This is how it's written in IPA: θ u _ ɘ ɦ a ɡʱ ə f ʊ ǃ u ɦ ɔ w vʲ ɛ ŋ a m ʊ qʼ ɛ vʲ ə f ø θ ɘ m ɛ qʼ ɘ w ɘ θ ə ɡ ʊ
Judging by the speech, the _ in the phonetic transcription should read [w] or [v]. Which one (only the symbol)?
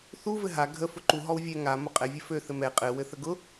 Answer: v